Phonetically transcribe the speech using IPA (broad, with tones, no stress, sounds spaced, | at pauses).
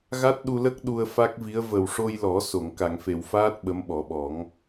ɣ a˦˥ t̚ ɗ u˧ l ə˦˥ k̚ ɗ u˧ ə̯ f a˦˥ k̚ v i˧˥ ə̯ v ə˨˩ w ʂ o˧ j l ɔ˨˩˦ s o˨˩˨ ŋ k a˨˩˨ ŋ f e˨˩˨ w f aː˦˥ t̚ ɓ ə˧˥ m ɓ ɔ˨˩˦ ɓ ɔ˨˩˦ ŋ